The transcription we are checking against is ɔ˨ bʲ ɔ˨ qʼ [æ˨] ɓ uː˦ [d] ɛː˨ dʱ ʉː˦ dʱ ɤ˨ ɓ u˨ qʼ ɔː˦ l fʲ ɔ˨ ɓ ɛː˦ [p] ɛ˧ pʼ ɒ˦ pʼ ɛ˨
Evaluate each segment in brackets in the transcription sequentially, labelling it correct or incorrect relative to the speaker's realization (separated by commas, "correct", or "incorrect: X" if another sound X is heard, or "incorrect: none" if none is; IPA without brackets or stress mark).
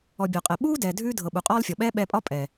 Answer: incorrect: ɛ˨, correct, incorrect: ɓ